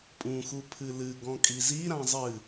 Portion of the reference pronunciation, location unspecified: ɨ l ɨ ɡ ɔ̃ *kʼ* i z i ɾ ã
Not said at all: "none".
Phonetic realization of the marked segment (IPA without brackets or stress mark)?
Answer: kʼ